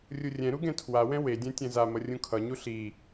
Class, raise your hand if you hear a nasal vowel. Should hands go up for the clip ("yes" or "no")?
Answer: yes